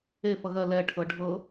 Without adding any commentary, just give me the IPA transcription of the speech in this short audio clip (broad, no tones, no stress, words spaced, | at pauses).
e fʌɣɜ lɛ ʈʰɤɖʱɤ